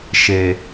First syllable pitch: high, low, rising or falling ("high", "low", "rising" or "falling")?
low